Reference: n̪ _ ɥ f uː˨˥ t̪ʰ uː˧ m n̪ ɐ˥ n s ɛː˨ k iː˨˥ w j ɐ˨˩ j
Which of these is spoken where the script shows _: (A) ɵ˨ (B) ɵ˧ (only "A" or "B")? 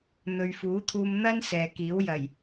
A